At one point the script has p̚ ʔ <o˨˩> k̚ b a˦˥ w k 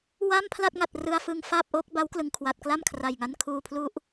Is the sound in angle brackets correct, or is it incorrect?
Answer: incorrect